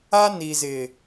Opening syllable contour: high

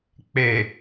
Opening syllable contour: low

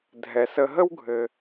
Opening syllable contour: low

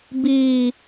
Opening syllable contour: low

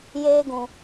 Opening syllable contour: high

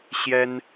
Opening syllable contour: high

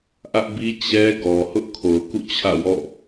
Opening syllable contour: high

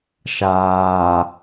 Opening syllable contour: low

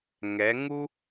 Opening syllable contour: rising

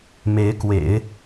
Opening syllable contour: rising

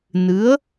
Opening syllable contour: rising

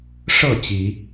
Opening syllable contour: falling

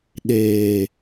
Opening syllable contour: low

